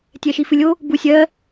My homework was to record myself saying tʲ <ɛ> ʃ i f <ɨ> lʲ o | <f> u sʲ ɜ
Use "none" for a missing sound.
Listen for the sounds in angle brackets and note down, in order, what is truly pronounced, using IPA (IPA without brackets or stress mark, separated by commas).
ɛ, ɨ, b